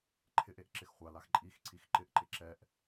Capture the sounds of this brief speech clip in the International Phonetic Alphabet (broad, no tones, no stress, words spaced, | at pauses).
ǃʰɪʔeʔ ǁɪxχʷalax ǃʼix ǀixǃɪʔǃɪ ǁɛʔ